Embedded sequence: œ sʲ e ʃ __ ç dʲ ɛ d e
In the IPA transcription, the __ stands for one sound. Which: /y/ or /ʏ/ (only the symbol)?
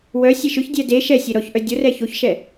ʏ